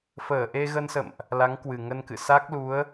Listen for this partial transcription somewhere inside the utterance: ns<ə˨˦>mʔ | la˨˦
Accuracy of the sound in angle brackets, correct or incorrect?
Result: incorrect